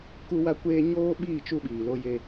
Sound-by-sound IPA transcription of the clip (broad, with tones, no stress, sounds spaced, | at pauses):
k u˦ w a˦ kʷ eː˦ ɲ oː˦ ɓ iː˦˨ t͡ʃ u˦ ɓ iː˨ l o˦ j e˦